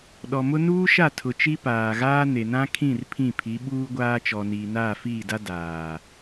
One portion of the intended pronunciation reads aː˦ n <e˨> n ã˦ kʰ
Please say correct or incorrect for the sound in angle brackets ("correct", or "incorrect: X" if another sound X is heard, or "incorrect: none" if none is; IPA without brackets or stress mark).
correct